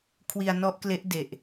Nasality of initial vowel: oral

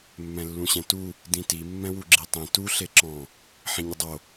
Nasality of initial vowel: nasal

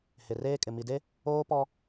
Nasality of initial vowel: oral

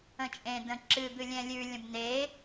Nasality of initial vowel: nasal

